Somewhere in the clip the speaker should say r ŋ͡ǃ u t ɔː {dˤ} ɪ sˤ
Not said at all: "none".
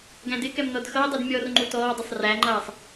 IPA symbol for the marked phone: dˤ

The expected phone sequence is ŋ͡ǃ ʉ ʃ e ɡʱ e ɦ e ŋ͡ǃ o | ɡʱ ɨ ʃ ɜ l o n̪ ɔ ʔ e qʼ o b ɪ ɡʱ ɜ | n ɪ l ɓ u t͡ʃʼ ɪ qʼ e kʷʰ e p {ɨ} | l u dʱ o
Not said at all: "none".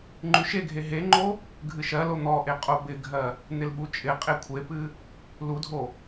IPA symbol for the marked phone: ɨ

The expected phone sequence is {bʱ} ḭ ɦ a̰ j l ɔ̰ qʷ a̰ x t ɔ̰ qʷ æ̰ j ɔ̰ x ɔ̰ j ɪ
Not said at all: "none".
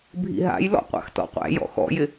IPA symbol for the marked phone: bʱ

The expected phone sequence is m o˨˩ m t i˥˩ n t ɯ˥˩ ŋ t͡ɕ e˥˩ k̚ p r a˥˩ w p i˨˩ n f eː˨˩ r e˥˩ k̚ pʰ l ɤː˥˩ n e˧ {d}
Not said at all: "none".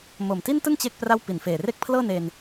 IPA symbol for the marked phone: n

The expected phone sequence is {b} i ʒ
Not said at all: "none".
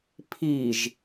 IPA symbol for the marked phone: pʰ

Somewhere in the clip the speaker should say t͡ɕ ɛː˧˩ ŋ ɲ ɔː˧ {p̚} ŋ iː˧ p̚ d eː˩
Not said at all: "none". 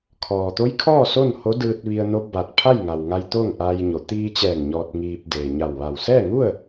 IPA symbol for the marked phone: t̚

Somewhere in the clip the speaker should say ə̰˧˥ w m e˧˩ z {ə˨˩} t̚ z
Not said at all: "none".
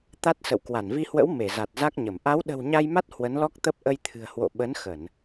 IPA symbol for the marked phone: a˨˩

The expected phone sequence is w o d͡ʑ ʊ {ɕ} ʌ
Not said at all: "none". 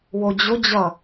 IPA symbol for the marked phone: d͡ʑ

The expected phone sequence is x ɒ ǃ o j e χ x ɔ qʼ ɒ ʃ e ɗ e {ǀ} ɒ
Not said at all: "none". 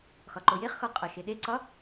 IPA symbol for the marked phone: ǀ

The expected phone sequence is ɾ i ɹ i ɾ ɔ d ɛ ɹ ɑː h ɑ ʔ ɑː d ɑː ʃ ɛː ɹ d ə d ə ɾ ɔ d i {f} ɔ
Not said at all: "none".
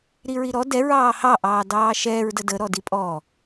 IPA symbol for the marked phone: pʼ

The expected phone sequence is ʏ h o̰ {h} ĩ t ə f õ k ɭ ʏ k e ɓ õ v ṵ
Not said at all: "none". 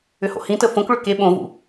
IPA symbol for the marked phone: h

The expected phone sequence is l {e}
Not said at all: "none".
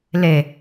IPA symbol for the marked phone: e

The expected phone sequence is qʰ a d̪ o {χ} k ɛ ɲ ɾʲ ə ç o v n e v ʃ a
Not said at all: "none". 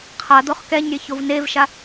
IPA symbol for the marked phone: χ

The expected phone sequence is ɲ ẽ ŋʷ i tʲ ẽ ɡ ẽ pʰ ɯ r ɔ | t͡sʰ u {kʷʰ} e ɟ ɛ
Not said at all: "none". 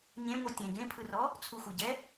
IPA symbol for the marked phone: xʷ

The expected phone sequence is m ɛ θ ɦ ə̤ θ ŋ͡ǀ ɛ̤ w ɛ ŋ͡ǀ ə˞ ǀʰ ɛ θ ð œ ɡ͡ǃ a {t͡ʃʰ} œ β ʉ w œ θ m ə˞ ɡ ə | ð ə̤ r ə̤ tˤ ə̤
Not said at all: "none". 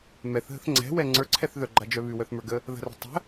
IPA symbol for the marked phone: d͡ʒ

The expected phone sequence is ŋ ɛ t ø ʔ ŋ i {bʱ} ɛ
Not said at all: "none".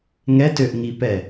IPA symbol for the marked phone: p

